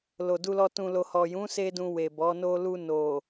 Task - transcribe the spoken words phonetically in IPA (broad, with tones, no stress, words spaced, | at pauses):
lo˨du˧lɔ˧ tũ˨lo˨hɔ˨jũ˨˦ se˦dũ˧ we˨bɔ˨˦ no˧lu˧ no˨